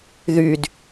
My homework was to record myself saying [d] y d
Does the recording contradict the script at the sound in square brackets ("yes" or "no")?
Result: yes